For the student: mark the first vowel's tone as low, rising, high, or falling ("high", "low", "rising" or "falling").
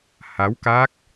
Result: rising